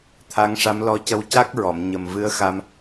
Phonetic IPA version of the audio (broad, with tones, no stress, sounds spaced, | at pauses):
t̪ʰ a˧˥ ŋ ʂ a˧˥ m l ɔ˧ c ə˧ w c a˦˥ k̚ ɹ ɔ˨˩˨ m ɲ ə˨˩ m v ɨ˧˥ ə̯ x a˧ m